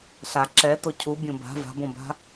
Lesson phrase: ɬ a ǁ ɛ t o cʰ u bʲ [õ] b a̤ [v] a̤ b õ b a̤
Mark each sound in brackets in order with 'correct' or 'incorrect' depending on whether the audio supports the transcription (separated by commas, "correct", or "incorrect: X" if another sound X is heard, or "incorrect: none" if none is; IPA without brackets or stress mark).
correct, correct